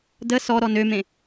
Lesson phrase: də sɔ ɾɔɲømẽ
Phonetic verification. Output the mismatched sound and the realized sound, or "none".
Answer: ɲ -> n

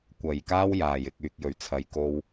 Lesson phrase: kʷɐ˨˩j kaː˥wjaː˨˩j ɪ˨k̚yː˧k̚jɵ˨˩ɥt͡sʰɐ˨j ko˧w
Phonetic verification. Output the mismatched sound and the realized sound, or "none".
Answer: yː˧ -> yː˨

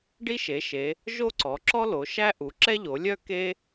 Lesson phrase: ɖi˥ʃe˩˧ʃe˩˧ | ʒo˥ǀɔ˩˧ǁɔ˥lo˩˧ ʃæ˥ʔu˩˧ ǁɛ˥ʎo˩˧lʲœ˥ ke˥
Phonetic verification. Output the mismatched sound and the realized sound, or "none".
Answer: none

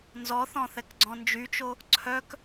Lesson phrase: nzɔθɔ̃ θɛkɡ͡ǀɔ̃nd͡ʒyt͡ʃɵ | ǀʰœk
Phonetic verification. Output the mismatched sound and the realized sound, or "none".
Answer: ɵ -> o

